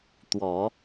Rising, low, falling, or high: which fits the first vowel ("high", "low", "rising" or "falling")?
low